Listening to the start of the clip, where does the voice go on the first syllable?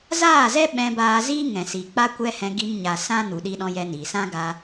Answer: falling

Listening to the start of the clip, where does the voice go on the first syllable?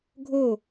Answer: falling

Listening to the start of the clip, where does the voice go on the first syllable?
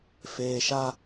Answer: low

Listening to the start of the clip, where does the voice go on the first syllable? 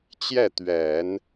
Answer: falling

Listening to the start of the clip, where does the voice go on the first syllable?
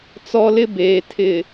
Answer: high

